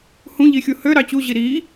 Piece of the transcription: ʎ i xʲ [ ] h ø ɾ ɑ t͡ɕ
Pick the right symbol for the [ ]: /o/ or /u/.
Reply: u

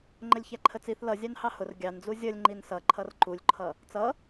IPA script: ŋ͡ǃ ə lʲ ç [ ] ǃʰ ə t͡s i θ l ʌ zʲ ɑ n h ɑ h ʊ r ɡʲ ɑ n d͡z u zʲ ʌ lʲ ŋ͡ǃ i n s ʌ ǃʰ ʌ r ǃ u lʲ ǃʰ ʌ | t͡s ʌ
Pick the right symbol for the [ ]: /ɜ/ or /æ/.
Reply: æ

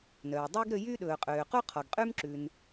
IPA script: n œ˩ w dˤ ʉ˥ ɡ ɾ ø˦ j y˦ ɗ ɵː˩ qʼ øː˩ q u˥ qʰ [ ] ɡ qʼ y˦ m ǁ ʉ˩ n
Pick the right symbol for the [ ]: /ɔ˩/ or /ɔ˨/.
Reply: ɔ˩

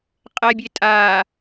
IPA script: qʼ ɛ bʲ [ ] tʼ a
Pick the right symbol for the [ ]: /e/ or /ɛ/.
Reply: e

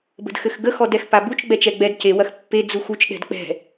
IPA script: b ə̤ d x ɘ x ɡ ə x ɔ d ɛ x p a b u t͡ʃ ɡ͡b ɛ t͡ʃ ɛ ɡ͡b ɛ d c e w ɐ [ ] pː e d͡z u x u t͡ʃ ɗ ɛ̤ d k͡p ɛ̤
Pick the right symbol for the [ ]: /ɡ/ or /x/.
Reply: x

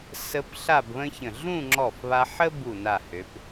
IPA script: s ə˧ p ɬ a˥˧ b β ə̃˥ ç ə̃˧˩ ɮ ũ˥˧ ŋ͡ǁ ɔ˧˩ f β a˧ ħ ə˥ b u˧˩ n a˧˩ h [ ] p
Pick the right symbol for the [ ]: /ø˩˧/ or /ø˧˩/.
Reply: ø˩˧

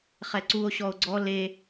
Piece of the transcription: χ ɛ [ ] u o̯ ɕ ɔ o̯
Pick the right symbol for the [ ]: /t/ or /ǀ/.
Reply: ǀ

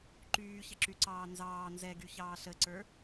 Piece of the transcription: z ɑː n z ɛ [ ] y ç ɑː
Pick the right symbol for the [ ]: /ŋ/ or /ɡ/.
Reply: ɡ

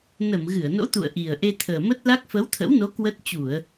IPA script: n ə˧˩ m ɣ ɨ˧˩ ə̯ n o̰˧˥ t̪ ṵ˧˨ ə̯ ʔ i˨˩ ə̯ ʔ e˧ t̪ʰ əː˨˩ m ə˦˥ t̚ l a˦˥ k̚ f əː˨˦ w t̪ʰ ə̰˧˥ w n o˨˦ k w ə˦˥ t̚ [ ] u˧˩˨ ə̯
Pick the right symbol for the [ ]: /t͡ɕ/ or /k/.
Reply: t͡ɕ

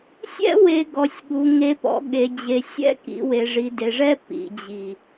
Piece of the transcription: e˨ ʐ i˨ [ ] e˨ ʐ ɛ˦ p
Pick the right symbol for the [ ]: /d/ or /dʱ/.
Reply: d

